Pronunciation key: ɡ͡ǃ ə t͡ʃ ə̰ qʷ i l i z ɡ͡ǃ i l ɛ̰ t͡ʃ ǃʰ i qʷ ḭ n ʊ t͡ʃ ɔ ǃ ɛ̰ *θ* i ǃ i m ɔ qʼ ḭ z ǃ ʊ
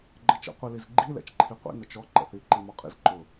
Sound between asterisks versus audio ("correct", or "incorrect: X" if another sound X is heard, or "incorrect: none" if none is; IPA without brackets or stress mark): correct